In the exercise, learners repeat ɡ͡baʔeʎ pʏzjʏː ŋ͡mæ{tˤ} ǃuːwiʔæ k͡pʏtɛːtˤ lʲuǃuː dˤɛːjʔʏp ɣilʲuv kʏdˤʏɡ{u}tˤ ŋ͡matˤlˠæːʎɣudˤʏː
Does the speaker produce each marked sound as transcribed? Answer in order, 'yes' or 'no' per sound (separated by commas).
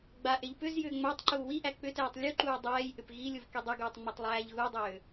yes, no